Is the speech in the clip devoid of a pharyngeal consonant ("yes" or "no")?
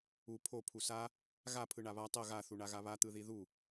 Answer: yes